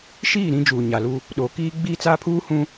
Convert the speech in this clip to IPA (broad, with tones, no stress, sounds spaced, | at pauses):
ʃ iː˦˨ ɾ ĩ˦ d͡ʒ uː˨ ɲ a˨ l u˦ | ɗ oː˨ k iː˦ ɡ͡b iː˦ t͡s aː˦ pʰ uː˦ h ũ˦